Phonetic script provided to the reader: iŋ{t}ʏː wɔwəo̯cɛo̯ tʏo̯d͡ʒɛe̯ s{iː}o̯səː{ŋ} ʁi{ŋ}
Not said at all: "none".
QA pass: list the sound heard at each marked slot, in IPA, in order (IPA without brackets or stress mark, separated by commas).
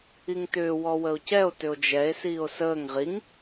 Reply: t, iː, ŋ, ŋ